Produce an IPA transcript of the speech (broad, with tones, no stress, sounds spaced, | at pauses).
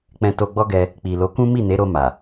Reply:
k͡p ɛ̃˨ t o˧ ɡ͡b ɔ˦ ɡ ɛ˧ | k͡p i˨ l o˨˦ k ũ˦ m i˦˨ n e˨˦ ɾ o˧ m a˨